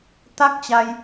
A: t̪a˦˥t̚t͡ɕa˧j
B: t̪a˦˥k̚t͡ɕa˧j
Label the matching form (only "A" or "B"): B